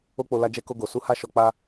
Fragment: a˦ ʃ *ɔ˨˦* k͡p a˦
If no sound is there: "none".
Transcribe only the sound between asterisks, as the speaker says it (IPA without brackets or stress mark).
ɔ˧